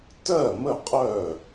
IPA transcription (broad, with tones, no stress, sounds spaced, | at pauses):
t ɜ˥˩ m ə˥˩ qʼ œ˥˩